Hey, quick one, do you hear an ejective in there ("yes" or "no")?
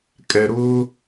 yes